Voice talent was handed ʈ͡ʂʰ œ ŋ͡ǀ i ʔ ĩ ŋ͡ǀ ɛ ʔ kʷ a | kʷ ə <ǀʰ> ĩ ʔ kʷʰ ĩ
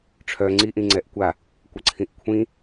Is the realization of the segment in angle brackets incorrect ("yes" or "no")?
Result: no